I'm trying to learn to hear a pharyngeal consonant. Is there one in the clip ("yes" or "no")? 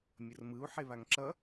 yes